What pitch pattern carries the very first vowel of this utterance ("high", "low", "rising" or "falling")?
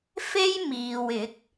high